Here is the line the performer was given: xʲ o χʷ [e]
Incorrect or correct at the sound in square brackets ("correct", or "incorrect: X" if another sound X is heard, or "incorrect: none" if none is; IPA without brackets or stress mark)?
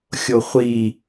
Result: incorrect: i